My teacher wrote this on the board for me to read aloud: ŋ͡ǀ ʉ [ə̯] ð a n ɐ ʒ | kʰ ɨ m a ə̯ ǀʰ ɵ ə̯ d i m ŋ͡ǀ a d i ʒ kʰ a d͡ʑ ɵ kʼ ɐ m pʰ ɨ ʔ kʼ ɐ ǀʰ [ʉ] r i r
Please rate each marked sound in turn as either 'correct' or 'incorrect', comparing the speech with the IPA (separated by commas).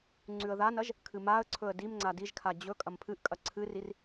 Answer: correct, incorrect